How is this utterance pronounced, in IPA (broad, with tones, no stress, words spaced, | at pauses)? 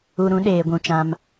u˧ɾũ˨˦ ɗeː˨ɡʷũ˨ t͡ʃã˧m